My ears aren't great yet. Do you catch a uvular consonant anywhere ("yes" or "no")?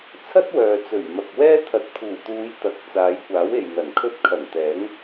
no